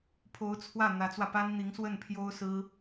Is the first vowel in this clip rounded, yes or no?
yes